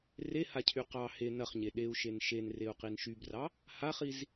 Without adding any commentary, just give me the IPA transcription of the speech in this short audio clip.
r e h a cʰ y q ɑ h e n ɐ χ ɲ e ɗ e u̯ ʃ e n ʃ e n r e u̯ q i n ʃ y b r ɑ | h a χ i z

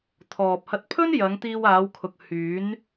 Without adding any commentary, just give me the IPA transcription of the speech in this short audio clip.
t̪ʰ ɔː˨ p̚ h ɐ˧ t̚ pʰ ɵ˥ n j ɐ˨˧ ŋ t̪ iː˧ w aː˨˧ w kʰ ʊ˨ k̚ h yː˨˧ n

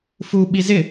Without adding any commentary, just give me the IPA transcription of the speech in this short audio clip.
f u ɓ i z ɪ

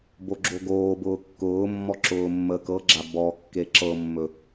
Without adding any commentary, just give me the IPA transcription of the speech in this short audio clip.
b o ɡ͡ǁ o ɡ oː b ʊː kː ʊː mː ɔ ǁ ʊː mː əː k ɤ ɡ͡ǁ a b ɔ kː e ǁ ɤ mː ɵ

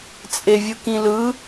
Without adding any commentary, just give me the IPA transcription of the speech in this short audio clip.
t͡sʼ e vʲ ɯ k ĩ l ɯ

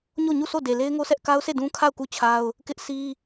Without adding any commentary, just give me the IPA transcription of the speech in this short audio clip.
ɲ o˦˨ ɲ u˦˨ s o˦˨ d e˨ l e˦ ɪ̯ ŋ o˦ sʰ ɛ˦ ʔ k a˦ ʊ̯ sʰ e˦˨ d ũ˦ kʰ a˦˨ ʊ̯ k u˦˨ t͡ɕʰ a˦ ʊ̯ | k ɪ˦ ʔ sʰ i˦

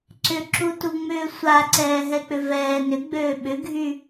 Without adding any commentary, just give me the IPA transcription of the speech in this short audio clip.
ǀ ʏ ǁ u t u ŋ͡m ʏː sʷ a ǀ ɛː ɦ ɛ k͡p ʏ v ɛː n ʏ ɡ͡b øː ɓ ʏ ɡʱ y

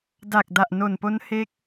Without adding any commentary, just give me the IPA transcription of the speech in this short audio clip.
d a˨˩ k̚ d a˨˩ ʔ n o˨˩ n p o˦˥ n h e˦˥ k̚

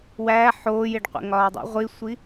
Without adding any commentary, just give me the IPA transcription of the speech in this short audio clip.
w æː ħ oː j e ɖ qʷ ḛ ŋ ɒː dˤ ḭ ʁʷ i sʷ i

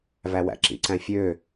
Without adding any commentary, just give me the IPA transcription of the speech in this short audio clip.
v æ w æ̰ ǁ ḭ ǀ æ̃ fʲ ø

